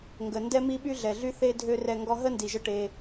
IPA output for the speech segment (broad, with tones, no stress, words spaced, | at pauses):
ŋɡə˨ ndɛ˦ mi˦ɓy˦ɮɛ˨ ɮy˦θe˦dʱø˦ rɛ˧ ŋɡɔ˦ ɦə˦ndi˨ʒə˧ ʈe˧